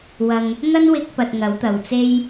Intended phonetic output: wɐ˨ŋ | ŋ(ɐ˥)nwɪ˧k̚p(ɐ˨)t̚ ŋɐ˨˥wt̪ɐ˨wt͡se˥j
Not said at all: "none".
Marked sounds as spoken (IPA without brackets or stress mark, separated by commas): ɐ˥, ɐ˨